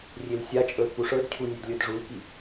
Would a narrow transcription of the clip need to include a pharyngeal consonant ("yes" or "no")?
no